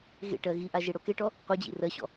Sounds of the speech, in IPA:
ɣḛʈɜ ɣiʔa ʒeɽokeʈɔ | qʷed͡ʑḭ rɜɕɔ̰

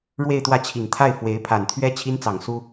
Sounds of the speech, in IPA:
ɻwe˥˧ɪ̯t̪wä˥˩t͡ɕʰi˨˩ŋ t̪ʰa˥˩ɪ̯ fwe˧˥ɪ̯ pʰa˨˩nt̪ʰɥɛ˥ t͡ɕʰi˥nt͡sɑ˨˩ŋ su˥

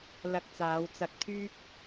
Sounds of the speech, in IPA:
lɐ˧k̚t͡saː˨˧wt͡sɐ˧k̚t̪ʰyː˥k̚

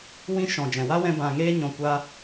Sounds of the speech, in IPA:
wĩ˧ ʃɔ̃˨d͡ʒɛ̃˨wa˦wɛ̃˧ bã˨ŋeː˧ɲɔ̃˨ kʷa˧

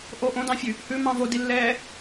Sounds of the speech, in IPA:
ʔo ʔõdɑ̃fʲʉ | hʉmɑ̃ vodilːɛː

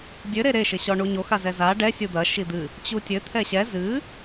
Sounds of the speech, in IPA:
dʲɘ ɾeɾe ʃɘɕɔɳuɲo xazɛza ɖɛ sʲud̪ɐ ʃid̪ɨ | t͡ɕutʲɘ t̪ʰɛɕɛ zɨ

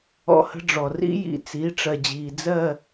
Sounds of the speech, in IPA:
ɔ̰˦hə̤˦ɖ͡ʐɔ˨ rḭ˦jḭ˨t͡si˨˦ ʈ͡ʂɜ˨d͡ʑiː˨ d͡zɜ˦˨

